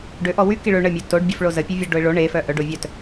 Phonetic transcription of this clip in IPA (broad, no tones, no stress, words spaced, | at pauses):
ɖøʔɔ wy kiɭø ɳəmʲœ toɖbʲəf ɭozəpʲø vʲə ɖoɪ̯ɭo ɳefœ ʔœɖovʲœt